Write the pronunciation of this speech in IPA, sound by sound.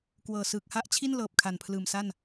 k w ɤː˨˩ s ɯː˨˩ k̚ h a˥˩ ʔ t͡ɕʰ i˥˩ n l ɤː˨˩ p̚ kʰ a˨˩ n pʰ l ɯː˨˩ m s a˥˩ n

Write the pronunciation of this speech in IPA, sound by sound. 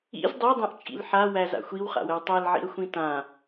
ḭ z dˤ ɤ dˤ æ̃ ʔ t͡ʃʼ ḭ l ħ a w æ z a̰ xʷ i w χ a̰ w ə w tˤ æ l ʕ ḭ ə̯ xʷ ĩ t ã

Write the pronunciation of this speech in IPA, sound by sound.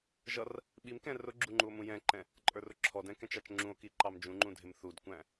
ʒ ʌ r | ɓ i m k ɛ̃ r ʊ ɡ͡ǁ u ŋ͡ǃ u o̯ m ũ j ɛ̃ ǃ ɛ̃ | ǃʼ ə˞ r ʊ ǁʰ ɔ d ɛ̃ k ɛ̃ t͡ʃ ɑ t͡ʃ ŋ͡ǁ ũ o̯ k i ǃ ɑ m d͡ʒ ũ ŋ͡ǃ ũ dʱ ɪ m θ u d kʷ æ̃

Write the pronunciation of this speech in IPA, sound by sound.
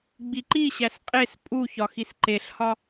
ɡ͡b i ǃ i ɕ æ s qʼ e s pʼ u ç ɒ x i s ǃ e ɬ h ɒ

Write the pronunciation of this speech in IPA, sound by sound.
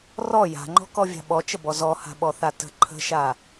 r ɔ j a̤ ŋ͡ǃ ɔ̤ k ɔ vʲ a̤ ɓ ɔ t͡ʃ ə b ɔ z ɔ h a̤ ɓ ɔ θ a t ə̤ ǃʰ ə̤ ʃ a

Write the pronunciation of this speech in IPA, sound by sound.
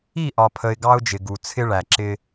i˦˨ ʔ ɒ˨ pʰ ə˨ ɪ̯ ɡ ɑ˦ ʊ̯ d͡ʒ ɪ˨ ɡ u˨ t͡sʰ ɪ˦ ɭ æ˨ ǁ ɪ˦

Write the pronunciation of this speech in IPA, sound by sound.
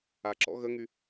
a ǁ ɔ̰ ɣ ə ŋ y

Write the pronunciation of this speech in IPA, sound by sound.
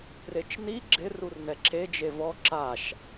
p r e t͡ʃ n i ɡ͡ǁ ɪ r u r n ɛ ǁ e d͡ʒ e v ɔ ǁ a ʃ

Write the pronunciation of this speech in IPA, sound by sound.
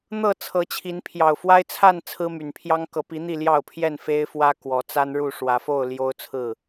n̪ ɤ˥˨ t͡sʰ ɤ˨˦ t͡ɕʰ i˨˦ n pʰ j ɑ˨˩ ʊ̯ f w a˦ ɪ̯ t͡sʰ a˥˨ n t͡sʰ ɹ̩˦ m y˨˩ n pʰ j ɑ˦ ŋ k ɤ˨˦ p i˨˦ n̪ i˥˨ l j ɑ˥˨ ʊ̯ pʰ j ɛ˥˨ n f e˦ ɪ̯ f w ä˦ k w ɔ˨˦ t͡s a˦ n ɻ u˥˨ ʂ w ä˨˦ f o˥˨ ʊ̯ l j o˦ ʊ̯ t͡sʰ ɹ̩˥˨

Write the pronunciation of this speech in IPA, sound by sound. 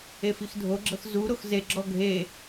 e f i x dʱ o ɡ͡ǁ ɤ x z u ɾ o x z e ɡ͡ǁ ɔ ɡʱ e

